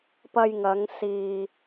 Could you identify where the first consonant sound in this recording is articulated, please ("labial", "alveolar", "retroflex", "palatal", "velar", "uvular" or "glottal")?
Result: labial